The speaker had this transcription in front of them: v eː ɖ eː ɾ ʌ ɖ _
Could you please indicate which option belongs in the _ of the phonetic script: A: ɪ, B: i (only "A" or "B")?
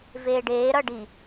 B